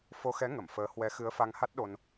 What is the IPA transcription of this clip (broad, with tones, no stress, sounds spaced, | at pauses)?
f o˧ x ɛ˨˦ ŋ ə˧˩ m f əː˨˦ h w ɛ˨˦ x ɨ˨˦ ə̯ f a˧ ŋ h a˦˥ t̚ ɗ o˧ n